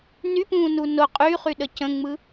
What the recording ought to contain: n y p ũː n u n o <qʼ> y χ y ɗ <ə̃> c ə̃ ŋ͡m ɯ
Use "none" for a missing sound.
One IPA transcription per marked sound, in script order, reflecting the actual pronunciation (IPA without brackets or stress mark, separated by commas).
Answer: qʼ, ə